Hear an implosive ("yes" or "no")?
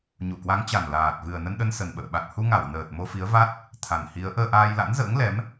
yes